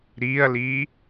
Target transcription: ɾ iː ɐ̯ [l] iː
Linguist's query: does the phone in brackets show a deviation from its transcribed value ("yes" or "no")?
no